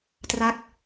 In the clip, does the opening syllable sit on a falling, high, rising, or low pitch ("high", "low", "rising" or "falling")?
falling